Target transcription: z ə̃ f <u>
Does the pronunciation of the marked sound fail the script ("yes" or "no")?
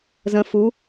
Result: no